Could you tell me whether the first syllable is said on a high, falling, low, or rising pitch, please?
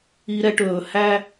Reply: high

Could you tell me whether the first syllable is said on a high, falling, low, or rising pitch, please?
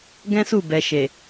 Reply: high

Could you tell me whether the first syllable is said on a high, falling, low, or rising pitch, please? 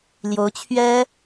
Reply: rising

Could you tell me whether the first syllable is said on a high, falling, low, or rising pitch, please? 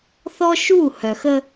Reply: high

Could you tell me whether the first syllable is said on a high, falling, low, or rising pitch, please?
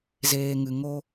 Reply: low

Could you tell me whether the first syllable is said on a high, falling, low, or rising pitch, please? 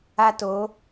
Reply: high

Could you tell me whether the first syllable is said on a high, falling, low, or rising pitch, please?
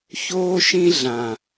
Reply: high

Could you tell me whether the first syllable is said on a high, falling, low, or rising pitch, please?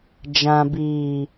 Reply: low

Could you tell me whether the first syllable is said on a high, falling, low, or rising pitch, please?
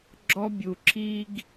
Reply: high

